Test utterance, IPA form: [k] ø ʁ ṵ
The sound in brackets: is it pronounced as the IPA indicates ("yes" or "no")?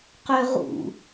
no